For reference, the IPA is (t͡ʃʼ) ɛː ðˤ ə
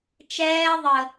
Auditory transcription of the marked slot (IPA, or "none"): t͡ʃ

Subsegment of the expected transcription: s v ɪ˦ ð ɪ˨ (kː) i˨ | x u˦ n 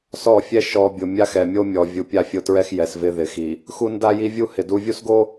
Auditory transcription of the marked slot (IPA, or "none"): x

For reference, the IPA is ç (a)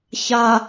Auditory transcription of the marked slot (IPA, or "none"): a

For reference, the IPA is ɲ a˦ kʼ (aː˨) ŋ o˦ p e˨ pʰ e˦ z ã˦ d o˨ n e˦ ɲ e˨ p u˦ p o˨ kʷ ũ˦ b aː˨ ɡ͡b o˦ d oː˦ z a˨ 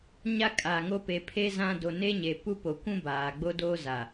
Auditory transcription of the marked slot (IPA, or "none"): aː˨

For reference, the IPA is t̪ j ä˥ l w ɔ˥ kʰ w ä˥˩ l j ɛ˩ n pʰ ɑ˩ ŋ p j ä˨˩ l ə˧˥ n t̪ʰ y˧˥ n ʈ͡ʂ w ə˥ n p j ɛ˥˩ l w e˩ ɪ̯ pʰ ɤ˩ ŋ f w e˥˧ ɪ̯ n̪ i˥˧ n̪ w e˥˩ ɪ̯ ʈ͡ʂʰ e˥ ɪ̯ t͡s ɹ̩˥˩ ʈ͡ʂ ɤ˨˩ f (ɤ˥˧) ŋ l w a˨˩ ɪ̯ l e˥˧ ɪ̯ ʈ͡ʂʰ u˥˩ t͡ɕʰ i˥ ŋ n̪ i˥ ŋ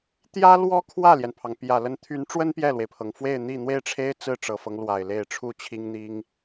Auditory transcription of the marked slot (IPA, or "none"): ɤ˦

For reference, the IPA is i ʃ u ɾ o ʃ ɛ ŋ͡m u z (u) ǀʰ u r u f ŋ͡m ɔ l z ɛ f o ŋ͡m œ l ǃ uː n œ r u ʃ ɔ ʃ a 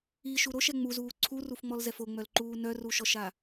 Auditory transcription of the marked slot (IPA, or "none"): uː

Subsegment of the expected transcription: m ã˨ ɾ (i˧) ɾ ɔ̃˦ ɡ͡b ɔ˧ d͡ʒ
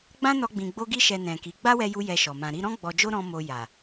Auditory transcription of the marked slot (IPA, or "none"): i˧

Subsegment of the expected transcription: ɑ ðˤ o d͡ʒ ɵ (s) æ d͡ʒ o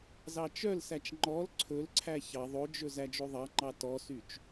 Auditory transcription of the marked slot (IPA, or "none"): z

